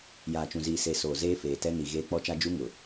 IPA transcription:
j aː˨ t͡ʃ ũ˨ z iː˨ s e˨ s oː˨ z eː˦ f eː˨ t ɛ˦ n i˨ ɣ eː˦ k͡p ɔ˦ t͡ʃ a˦ d͡ʒ u˦ ŋ ʊ˨

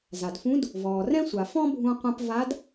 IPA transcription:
z a˩ d f ũ˧˥ d | v ɔː˩ r ɛ̃˥ sʷ a˩ f ɔ̃˥ bʱ ũ˧ qʷ ɛ̃˧ p v a˧˥ d

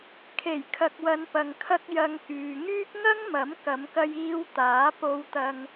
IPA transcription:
kʰ e˨˩ j kʰ ɐ˨ k̚ w ɐ˨˧ n p ɐ˨ ŋ kʰ ɐ˧ k̚ j ɐ˨ ŋ k yː˨ ŋ yː˥ k̚ ŋ ɐ˥ ŋ m ɐ˨˥ m k ɐ˨˧ m k ɐ˧ j iː˧ w t̪ aː˨˥ p o˧ w t̪ ɐ˧ ŋ

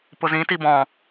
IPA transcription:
p ʊ z ĩ t i b ɔ̃

